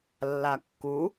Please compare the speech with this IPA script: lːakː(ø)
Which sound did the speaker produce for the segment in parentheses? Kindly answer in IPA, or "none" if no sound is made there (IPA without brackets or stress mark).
u